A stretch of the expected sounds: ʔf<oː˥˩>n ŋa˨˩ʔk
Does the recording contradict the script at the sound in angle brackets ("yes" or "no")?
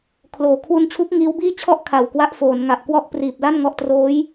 yes